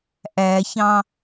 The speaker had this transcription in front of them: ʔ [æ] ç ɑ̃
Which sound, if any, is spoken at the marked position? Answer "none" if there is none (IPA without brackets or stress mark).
æ